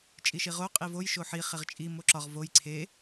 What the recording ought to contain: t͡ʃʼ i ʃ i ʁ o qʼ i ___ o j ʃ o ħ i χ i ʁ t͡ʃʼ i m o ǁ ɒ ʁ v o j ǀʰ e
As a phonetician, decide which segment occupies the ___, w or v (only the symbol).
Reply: v